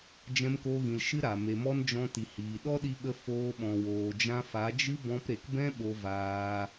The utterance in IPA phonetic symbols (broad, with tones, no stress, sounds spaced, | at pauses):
d͡ʒ ɛ̃˧ m k o˧ ɣ ĩ˨ l ʃ ɨ˦ ɾ a˨ m e˨ m ɔ˦ n d͡ʒ ɔ̃˧ t i˨ h iː˨ ɗ ɔ˦ ɗ i˧ ɓ ə˧ f oː˧ ɓ ɔ̃˨ w oː˨ d͡ʒ ã˧ f a˨˦ d͡ʒ ɨ˦ b ɔ̃˧ p ɾ e˨ k b ɛ̃˦ ɓ o˧ v aː˧